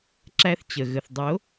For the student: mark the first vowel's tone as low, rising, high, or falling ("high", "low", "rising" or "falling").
high